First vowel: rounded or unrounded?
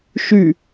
rounded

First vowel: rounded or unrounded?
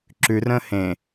rounded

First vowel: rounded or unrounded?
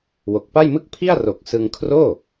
rounded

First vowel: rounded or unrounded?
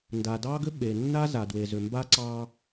unrounded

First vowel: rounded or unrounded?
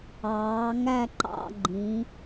unrounded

